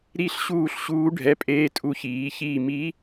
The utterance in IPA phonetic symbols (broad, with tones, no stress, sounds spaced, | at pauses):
ɾ i˥˨ ɬ ɕ uː˥˨ ɬ ɕ uː˧˥ ɖʱ ɛ˧˥˧ pʼ eː˧˥ tʼ u˧˥ ç iː˩˥ ç iː˥˨ m i˧˥